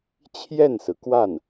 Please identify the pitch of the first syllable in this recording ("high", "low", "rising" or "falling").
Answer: falling